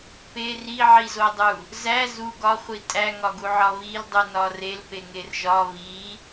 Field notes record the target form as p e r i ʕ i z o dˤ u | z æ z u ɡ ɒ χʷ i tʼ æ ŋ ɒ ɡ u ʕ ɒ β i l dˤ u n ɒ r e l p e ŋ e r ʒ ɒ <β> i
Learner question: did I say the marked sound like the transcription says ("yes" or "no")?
yes